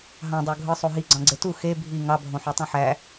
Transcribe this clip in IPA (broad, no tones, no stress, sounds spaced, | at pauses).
ɦ ɑ̃ dˤ o ɡʱ ɯ sˤ o ɦ i ɡ͡ǀ ɑ̃ ɡ͡ǀ e t u x e bʱ i ŋ ɑ bʱ õ ħ o tˤ ũ ħ æ